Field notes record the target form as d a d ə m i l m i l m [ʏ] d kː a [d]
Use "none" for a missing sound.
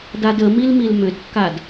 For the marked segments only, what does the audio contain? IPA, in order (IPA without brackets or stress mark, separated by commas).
ʏ, d